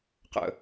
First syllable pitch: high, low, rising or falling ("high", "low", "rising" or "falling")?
low